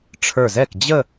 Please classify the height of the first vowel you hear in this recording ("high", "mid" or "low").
mid